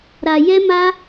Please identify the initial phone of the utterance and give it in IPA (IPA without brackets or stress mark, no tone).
ɾ